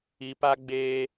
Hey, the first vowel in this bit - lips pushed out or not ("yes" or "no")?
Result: no